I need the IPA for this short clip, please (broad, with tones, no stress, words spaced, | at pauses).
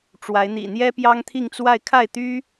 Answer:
ʈ͡ʂwa˧˥ɪ̯n̪ḭ˨˩ n̪jɛ˥pjɑ˥ŋt̪ʰi˥˧ŋt͡swa˥˧ɪ̯ kʰa˥˩ɪ̯t̪y˥